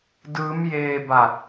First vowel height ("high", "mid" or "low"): high